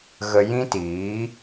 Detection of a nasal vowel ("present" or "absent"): present